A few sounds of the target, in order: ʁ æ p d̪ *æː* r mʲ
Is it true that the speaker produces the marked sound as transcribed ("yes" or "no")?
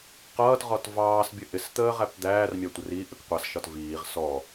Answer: yes